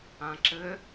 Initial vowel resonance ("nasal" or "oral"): nasal